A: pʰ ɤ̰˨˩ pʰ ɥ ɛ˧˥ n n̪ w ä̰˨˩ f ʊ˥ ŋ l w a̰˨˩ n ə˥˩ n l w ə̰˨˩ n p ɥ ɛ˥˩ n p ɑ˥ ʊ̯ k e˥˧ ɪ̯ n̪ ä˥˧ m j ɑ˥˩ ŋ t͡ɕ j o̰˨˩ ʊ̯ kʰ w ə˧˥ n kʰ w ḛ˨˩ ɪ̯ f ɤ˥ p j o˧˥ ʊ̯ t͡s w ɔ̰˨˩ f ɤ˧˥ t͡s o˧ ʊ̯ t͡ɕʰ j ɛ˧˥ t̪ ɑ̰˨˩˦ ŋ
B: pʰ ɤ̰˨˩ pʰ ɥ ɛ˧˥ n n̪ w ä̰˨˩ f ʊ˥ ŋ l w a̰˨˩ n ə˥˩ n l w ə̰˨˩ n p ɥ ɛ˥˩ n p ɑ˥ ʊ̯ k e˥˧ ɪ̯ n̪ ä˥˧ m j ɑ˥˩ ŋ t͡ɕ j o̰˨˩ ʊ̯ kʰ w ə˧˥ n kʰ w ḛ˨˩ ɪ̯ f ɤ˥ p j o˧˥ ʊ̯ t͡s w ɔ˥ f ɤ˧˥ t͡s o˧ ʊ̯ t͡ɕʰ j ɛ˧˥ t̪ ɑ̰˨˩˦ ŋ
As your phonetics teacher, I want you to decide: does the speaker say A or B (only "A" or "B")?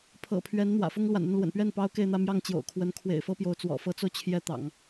A